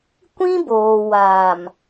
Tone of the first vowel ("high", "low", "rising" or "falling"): high